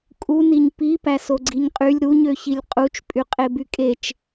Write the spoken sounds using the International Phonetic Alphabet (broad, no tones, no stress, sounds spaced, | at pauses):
kʼ u n i ɲ p i p æ s o ɡ͡ǀ i ɲ qʼ y lʲ ɾ u ɲ ø ç i lʲ qʼ u t͡ʃ pʼ y qʼ e b y kʼ e t͡ʃ